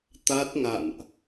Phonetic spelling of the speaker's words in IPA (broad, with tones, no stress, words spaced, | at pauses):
t̪a˦˥t̚ŋa̰˧˨nʔ